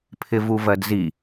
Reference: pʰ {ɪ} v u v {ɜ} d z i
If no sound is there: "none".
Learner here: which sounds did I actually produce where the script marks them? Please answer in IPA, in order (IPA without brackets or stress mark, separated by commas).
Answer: ɪ, ɜ